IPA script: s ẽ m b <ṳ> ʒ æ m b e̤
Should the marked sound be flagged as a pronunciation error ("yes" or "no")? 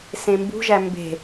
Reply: no